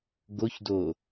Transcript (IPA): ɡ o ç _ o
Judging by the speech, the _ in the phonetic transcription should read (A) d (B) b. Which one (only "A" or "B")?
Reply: A